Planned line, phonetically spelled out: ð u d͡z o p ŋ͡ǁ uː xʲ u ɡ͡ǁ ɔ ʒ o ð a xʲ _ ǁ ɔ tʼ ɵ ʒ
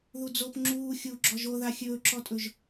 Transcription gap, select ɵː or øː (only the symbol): ɵː